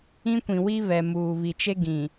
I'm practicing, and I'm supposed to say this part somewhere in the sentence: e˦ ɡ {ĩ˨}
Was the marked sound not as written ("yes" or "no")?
no